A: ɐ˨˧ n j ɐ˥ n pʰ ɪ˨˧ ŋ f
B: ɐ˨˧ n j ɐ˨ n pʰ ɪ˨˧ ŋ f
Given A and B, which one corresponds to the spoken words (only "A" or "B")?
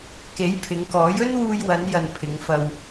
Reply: B